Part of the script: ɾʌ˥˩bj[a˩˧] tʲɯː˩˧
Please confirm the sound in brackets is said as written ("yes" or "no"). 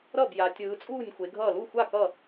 yes